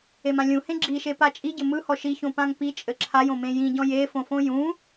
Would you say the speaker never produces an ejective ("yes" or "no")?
no